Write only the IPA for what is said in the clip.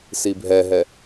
s i bʱ ɛ ɦ ɛ

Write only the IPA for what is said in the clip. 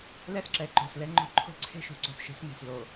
l ɛ˦ s ǁ ɛ˨ ǃ o̤˨ s l ɛ˦ ŋ͡ǃ o̤˦ ǃʰ o̤˦ ǀʰ e̤˦ ʃ o̤˨ ǀ o̤˨ s ʃ e̤˦ s m e̤˨ s l o˨

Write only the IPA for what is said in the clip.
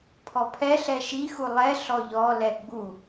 pʰ ɔ pʰ ɛ ɬ ɛ ʃ i x u lˠ ɛ ɬ ɔ ʎ ɔ l ɛ ɡ͡b u

